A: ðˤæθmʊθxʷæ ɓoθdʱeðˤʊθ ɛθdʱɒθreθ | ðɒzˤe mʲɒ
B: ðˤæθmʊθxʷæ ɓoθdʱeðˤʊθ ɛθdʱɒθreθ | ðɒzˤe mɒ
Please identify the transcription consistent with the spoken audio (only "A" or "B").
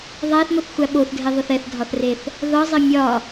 A